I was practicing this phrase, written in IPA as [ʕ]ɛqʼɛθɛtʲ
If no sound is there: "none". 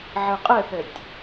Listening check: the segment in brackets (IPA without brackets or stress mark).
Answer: ʕ